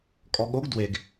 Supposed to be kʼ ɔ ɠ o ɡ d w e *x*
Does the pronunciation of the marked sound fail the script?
yes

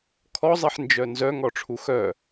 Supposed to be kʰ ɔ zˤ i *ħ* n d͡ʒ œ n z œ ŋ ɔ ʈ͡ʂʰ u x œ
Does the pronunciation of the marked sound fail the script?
no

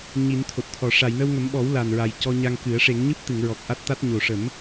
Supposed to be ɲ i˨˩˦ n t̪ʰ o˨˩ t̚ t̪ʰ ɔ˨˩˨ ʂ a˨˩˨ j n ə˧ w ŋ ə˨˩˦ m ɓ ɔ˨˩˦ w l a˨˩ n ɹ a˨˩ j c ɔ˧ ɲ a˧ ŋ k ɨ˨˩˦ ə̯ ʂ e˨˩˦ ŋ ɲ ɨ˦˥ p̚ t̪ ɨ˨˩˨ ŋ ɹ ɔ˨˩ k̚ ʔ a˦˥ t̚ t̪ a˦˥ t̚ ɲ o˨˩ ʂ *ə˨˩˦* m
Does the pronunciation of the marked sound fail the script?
no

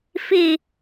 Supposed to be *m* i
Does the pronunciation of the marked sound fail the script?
yes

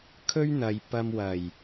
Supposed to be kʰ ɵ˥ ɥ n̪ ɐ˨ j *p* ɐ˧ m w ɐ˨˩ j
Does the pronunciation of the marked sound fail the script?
no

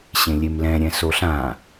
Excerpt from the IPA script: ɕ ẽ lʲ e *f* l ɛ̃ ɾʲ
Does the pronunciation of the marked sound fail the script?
yes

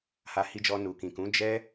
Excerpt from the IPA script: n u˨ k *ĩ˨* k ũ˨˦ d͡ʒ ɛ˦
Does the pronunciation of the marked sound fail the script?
no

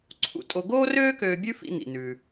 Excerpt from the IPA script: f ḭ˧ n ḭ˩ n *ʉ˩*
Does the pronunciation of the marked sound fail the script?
no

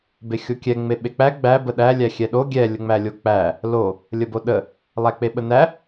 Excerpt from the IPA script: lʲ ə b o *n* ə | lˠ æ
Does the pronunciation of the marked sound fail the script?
yes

